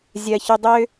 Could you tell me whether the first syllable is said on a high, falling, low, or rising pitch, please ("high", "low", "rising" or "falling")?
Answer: low